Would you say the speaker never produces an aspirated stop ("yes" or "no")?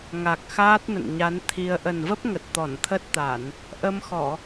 no